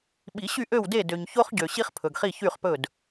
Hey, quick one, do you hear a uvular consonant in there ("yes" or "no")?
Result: yes